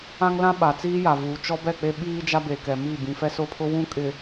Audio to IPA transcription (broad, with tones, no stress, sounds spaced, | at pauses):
ã˦ ŋ l ã˦ ɓ a˨ t͡s iː˦ j a˨ v uː˨ t͡ʃ ɔ˦ b ɛ˦˨ k͡p e˦ ɓ iː˦ d͡ʒ a˦ b e˨ k ɛ˨ m i˦˨ b ĩ˨ f ɛ˦ s ʊ˦˨ pʰ ʊ˦ w ũ˦ kʼ ɪ˨